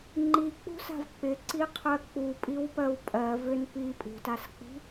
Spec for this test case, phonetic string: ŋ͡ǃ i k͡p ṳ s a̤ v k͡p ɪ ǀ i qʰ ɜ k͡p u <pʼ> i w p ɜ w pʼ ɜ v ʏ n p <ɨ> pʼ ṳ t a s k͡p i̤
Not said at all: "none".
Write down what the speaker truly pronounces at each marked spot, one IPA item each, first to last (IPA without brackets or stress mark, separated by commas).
pʼ, i